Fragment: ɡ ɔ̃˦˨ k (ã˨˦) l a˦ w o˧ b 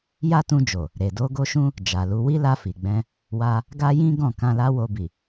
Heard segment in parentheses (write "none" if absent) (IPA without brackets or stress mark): ã˧